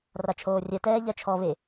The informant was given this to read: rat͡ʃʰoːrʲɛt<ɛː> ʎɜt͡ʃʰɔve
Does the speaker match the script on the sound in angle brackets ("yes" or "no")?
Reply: yes